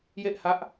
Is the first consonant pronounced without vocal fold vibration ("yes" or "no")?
no